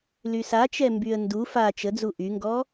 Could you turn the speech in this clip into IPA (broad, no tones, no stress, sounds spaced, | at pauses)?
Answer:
l y s a t͡ʃ ɛ m b y ə̯ n d u f a t͡ʃ ə d͡z u ʔ y ŋ ɡ ɔ